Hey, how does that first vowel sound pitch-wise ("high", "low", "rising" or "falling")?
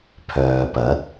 low